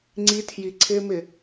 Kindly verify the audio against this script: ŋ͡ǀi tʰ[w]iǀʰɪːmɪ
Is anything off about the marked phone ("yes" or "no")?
yes